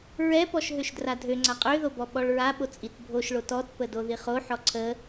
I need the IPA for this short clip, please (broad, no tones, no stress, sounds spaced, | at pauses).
ɹ ɛ p ɔ ʃ ɦ ø ʃ d r a dʱ ø ŋ͡ǀ a qʼ ø ð o b ɔ ɓ ɔ ɭ ɹ a ɓ o t͡sʼ i t bʱ o ʃ ɭ o t ɔ t p ə d o ð i χ o ħ ɔ ǀʰ ə